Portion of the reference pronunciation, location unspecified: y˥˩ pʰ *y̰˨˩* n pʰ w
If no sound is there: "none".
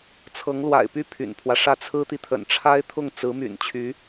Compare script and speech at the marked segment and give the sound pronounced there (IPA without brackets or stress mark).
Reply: y̰˨˩